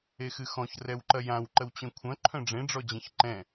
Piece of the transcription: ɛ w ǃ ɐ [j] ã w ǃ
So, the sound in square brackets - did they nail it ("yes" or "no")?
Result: yes